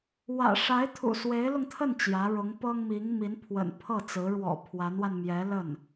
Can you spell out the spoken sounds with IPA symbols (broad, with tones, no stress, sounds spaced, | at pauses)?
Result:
w ä̰˨˩ ʂ a˧˥ ɪ̯ t̪ʰ ṵ˨˩ s w e˧˥ ɪ̯ l ʊ˧ ŋ t̪ʰ ə˥˩ n t͡ɕ j ä˧˥ ɻ ʊ˧˥ ŋ p ɤ˥ ŋ m i˧˥ ŋ m i˧˥ n pʰ w ə̰˨˩ n pʰ ɤ˥˩ t͡s ɹ̩˧˥ ɻ w ɔ̰˨˩ pʰ w a˧˥ n w a˧ n m j ɛ˧˥ l ə˥˩ n